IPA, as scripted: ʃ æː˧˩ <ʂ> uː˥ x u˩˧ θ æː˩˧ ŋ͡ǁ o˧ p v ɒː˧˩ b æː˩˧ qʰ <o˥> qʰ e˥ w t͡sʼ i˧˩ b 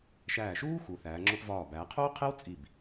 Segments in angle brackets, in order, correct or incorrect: incorrect: ʃ, incorrect: oː˥

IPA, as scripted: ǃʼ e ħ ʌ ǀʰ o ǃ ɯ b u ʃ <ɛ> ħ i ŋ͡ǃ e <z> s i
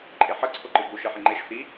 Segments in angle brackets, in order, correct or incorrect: correct, incorrect: ʃ

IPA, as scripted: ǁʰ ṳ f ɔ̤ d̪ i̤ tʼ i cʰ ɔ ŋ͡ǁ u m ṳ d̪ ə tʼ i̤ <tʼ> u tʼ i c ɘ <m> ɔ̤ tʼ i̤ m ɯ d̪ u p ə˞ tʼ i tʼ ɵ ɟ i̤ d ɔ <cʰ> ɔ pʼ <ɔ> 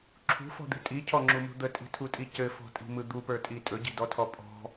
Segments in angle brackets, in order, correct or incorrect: incorrect: tʰ, incorrect: f, incorrect: tʰ, incorrect: ɔ̤

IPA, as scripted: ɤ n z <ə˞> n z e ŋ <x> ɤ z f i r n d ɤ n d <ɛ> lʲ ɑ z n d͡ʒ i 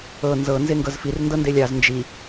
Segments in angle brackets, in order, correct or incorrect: incorrect: ɤ, incorrect: ɡ, incorrect: e

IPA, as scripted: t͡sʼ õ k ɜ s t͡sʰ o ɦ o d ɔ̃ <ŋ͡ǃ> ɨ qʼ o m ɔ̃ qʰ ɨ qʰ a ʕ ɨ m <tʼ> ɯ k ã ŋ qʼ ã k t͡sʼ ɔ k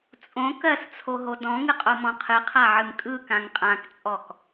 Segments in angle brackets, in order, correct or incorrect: incorrect: ŋ, incorrect: kʼ

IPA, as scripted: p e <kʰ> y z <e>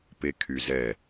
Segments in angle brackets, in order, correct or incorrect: correct, incorrect: ɛ

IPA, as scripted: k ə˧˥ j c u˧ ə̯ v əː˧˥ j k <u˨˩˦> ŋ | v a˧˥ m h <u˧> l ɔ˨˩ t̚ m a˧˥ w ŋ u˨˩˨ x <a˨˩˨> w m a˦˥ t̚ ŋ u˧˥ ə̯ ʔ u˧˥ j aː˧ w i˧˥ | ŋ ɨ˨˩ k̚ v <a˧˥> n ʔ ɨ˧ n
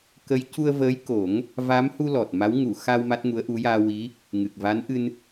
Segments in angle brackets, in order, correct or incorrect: incorrect: o˨˩˦, correct, incorrect: a˧, correct

